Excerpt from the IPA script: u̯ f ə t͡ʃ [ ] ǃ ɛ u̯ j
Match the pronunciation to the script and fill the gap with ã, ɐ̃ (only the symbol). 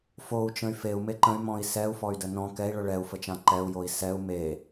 ã